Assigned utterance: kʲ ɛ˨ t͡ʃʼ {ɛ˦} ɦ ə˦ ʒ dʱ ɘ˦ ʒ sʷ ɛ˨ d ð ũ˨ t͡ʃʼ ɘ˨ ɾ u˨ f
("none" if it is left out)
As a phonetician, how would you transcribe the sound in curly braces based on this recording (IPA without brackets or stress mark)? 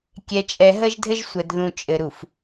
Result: ɛ˨